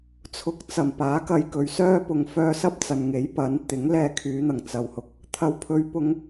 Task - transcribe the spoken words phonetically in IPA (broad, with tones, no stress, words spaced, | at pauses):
t͡sʰʊ˨k̚t͡sɐ˨˩m paː˨˥kɐ˧jkɵ˨ɥsœː˥ pʊ˨ŋfœː˧sɐ˥p̚ t͡sɐ˨nŋe˨˥j pɐ˨˥n t̪ɪ˨˥ŋ lɛː˧kʰyː˨˧n̪ɐ˨˩ŋ t͡sɐ˨whʊ˧k̚ | t̪ʰɐ˨wpʰɵ˨˧ɥpʊ˨˧ŋ